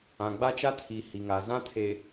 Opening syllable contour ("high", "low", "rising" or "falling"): low